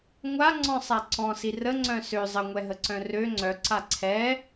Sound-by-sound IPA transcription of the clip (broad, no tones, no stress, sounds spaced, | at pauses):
ŋʷ a ŋ͡ǀ ɔ̃ sˤ a ǀ ɔ̃ s i r ə ŋ͡ǀ œ̃ s ø zˤ ə ŋʷ ɛ ɦ ə ǀ œ̃ r ø ŋ͡ǀ œ ǀ a ǀʰ ɛ